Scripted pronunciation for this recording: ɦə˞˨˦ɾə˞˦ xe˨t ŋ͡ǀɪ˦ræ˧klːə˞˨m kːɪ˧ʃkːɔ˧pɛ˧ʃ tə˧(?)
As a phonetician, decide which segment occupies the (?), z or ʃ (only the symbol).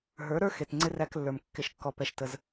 z